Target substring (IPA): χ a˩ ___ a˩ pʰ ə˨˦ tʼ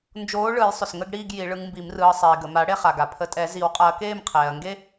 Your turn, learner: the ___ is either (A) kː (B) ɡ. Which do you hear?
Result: B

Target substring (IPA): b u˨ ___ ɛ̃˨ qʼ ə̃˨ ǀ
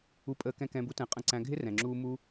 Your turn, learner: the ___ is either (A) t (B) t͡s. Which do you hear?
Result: A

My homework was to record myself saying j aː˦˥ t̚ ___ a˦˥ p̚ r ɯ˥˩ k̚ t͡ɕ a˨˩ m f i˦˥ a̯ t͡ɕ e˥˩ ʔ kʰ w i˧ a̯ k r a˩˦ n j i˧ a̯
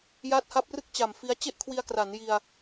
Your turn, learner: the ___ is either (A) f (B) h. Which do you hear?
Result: B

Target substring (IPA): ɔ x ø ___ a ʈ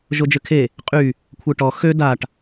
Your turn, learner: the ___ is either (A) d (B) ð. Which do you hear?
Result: A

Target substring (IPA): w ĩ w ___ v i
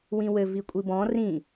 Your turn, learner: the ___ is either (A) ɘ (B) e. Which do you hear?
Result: A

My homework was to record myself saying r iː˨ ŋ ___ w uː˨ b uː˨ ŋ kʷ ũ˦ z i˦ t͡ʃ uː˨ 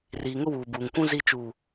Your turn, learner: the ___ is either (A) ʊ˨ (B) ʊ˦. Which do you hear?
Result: B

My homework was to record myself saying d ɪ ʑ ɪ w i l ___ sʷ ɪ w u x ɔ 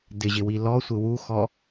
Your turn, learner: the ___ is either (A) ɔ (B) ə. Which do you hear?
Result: A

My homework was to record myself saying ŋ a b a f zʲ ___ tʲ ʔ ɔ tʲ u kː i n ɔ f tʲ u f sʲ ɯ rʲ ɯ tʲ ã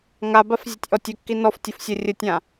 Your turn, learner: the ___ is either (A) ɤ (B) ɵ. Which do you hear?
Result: A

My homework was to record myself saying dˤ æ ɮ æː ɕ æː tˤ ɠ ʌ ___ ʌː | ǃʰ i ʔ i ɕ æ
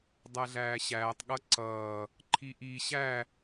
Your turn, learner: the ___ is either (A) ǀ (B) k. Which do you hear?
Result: A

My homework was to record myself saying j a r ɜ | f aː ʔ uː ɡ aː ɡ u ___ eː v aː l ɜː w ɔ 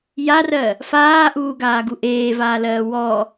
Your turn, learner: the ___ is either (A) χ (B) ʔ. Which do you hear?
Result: B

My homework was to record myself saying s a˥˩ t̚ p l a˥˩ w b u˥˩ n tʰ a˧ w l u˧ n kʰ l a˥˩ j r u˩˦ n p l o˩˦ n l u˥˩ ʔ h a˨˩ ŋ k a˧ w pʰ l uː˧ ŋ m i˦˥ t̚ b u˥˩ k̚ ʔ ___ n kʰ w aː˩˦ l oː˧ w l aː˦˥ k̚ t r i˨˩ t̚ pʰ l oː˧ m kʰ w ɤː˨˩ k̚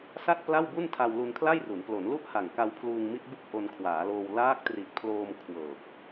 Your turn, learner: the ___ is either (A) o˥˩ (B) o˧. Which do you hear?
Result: B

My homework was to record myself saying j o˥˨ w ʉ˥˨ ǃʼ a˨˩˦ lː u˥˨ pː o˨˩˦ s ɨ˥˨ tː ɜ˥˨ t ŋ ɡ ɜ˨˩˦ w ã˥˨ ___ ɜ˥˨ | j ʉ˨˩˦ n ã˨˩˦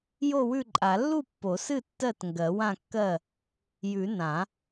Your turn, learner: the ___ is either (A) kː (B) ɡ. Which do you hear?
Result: A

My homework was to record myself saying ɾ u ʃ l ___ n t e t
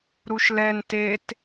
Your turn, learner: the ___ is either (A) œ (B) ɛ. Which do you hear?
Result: B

